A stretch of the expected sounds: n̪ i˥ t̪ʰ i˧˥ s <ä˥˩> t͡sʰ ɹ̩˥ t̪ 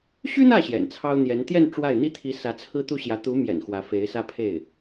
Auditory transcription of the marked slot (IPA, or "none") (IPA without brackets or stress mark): ä˧˥